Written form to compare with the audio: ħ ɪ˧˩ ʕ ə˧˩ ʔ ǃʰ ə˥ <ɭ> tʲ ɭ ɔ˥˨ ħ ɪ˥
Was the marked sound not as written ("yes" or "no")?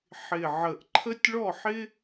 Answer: yes